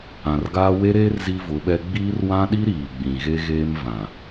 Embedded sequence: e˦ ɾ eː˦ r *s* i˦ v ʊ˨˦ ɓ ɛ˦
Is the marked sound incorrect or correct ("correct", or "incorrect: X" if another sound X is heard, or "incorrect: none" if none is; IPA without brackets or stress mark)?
incorrect: z